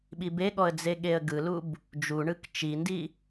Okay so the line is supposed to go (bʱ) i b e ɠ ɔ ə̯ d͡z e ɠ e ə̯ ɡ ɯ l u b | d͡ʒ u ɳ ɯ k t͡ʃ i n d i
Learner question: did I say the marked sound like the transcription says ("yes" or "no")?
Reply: no